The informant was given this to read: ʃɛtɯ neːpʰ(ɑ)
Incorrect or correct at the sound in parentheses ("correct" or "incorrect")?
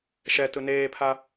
incorrect